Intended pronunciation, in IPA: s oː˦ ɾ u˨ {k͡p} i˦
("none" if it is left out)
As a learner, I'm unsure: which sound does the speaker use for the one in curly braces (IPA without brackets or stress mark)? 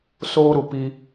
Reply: p